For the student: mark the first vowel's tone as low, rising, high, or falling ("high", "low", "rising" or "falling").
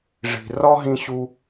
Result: low